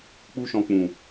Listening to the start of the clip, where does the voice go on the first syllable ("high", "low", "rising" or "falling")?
high